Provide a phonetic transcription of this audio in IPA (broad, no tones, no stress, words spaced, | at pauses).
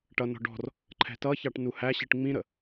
ʈʌnɔ̤ ɖɔ̤r | ǃʰɛ̤tʌçɑʈ nuhæɕiʈ ŋ͡mĩɾə